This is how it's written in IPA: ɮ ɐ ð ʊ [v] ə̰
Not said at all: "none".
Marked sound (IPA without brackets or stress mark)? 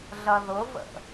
v